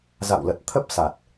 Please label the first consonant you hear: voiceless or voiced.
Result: voiced